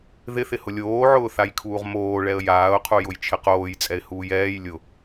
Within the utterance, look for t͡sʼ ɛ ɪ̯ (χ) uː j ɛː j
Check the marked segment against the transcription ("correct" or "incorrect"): incorrect